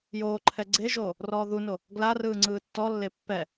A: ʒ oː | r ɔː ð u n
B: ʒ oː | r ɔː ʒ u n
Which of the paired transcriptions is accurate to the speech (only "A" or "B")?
A